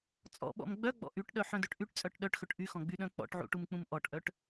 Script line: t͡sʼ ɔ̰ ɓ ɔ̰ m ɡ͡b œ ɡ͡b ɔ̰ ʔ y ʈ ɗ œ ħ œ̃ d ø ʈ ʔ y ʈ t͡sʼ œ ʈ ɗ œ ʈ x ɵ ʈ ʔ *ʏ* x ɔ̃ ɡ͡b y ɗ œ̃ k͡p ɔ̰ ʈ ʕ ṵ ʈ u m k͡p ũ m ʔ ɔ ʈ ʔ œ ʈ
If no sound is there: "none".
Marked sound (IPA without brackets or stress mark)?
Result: y